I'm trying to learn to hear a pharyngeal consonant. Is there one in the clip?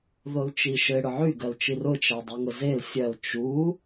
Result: yes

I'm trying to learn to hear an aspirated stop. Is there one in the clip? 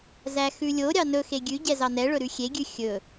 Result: no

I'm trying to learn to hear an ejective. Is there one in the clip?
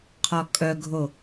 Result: yes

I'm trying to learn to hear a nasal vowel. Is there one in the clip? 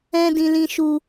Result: yes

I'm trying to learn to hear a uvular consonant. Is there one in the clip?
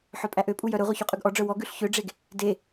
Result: yes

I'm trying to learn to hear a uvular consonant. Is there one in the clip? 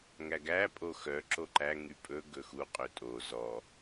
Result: yes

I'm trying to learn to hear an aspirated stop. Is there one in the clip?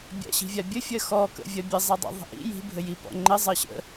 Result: no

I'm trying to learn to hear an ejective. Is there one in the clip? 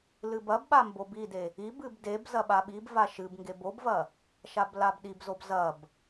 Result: no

